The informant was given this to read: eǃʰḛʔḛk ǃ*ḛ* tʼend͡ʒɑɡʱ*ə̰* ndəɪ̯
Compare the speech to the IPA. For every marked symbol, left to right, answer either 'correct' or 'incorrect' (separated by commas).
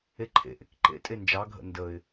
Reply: correct, correct